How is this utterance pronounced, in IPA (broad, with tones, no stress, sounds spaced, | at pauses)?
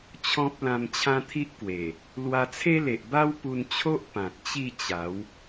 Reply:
t͡ɕʰ ɔ̃˦ p̚ l ã˧ m t͡ɕʰ ã˦ t̪ʰ i˦ ʔ k w e˨˩ | l w a˧ t͡sʰ e˦ l e˨ ʔ b a˦ w p u˧ n t͡ɕʰ o˦ ʔ p ã˨ t̚ t͡ɕ i˥˧ t͡ɕ a˨˦ w